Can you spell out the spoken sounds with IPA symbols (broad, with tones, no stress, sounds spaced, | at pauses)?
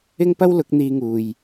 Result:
ɪ˥ ŋ p ɐ˥ w l ʊ˨˥ k̚ n̪ iː˧ ŋ uː˨ j